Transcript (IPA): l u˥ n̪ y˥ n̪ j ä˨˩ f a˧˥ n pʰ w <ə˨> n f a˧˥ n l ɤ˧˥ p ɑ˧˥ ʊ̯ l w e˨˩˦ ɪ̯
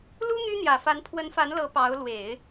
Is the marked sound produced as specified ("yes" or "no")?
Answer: no